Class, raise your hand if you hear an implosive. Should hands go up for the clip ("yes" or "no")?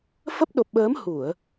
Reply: yes